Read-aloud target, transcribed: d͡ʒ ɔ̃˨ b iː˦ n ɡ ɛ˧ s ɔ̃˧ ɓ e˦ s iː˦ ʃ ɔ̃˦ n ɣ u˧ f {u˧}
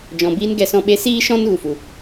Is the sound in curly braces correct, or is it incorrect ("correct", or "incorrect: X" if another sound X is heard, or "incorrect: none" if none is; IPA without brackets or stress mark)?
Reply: incorrect: u˨